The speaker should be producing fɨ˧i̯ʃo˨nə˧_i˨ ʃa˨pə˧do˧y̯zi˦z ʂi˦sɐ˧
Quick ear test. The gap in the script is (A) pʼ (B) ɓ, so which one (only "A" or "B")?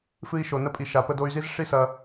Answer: A